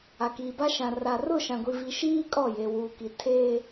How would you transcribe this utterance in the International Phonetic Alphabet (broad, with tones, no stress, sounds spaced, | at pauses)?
a˨ k iː˨ b a˦ ʃ ã˨ r a˨ r ʊ˦˨ ʃ ã˨ ɡʷ i˨ v i˨ ʃ iː˦ kʼ ɔ˦˨ j e˨ w uː˨ k i˨ tʰ eː˦